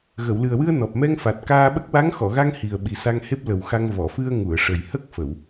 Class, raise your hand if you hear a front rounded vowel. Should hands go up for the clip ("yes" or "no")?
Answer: no